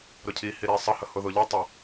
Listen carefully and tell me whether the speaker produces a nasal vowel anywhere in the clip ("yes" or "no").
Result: no